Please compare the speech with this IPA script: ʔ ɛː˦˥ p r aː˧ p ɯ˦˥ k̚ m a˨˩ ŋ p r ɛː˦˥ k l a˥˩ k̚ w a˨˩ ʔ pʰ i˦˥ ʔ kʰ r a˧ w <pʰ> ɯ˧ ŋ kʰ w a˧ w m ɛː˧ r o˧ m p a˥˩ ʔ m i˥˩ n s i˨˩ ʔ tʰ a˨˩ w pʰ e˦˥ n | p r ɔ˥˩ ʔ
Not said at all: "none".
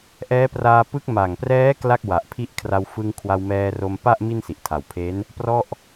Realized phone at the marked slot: f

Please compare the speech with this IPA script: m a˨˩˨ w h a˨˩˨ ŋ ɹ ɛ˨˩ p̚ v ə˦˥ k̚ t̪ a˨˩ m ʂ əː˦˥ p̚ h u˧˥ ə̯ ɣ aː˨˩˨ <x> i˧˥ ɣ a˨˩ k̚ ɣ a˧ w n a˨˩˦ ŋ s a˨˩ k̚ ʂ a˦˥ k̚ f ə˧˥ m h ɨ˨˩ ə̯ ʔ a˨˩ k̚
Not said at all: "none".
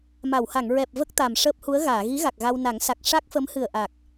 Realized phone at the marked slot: ɣ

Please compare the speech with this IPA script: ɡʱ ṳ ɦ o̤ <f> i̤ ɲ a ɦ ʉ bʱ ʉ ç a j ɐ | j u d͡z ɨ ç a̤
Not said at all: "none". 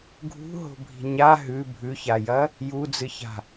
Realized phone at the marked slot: bʱ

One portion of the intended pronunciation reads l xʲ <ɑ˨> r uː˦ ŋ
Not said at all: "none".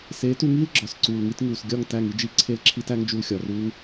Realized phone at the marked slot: ɒ˨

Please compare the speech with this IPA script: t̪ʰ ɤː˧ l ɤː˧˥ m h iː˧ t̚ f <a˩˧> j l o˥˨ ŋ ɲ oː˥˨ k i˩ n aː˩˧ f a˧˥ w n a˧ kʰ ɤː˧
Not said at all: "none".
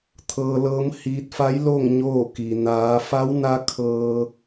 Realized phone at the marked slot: a˧˥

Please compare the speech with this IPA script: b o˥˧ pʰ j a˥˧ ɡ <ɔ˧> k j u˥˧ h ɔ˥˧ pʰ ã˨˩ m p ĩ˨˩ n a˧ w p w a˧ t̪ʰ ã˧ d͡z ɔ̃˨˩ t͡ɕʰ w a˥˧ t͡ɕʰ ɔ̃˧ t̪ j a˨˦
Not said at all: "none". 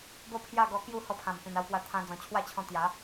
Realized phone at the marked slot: ɔ˧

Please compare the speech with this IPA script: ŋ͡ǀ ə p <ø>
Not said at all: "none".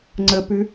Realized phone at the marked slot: ʉ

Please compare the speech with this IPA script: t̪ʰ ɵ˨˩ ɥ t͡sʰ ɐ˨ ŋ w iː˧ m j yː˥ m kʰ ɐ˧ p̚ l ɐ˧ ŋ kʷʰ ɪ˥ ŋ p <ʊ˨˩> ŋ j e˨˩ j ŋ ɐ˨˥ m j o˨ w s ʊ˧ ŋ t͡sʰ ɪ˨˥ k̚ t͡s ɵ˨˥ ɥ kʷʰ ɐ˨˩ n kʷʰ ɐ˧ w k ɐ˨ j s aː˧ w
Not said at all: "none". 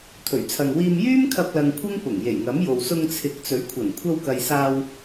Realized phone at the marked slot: ʊ˨˩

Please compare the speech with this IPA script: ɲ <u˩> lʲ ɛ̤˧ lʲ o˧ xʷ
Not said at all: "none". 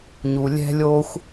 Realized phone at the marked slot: u˩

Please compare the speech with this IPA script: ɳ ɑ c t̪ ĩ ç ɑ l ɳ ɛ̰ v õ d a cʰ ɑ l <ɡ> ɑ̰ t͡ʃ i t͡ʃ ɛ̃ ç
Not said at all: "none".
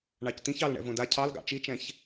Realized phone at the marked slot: ɡ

